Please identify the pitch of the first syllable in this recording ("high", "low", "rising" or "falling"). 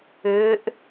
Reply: rising